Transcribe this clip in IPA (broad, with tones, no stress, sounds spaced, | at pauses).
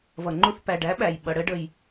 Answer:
v ʌ˨ ŋ͡ǃ u˧ θ p æ˨ ɖ æ˨˦ ɓ æ˨ j ɓ ʌ˨ ɽ ə˦ ɖ ə˧ j